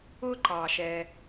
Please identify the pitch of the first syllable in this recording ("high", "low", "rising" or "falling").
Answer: high